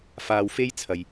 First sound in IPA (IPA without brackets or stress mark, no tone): f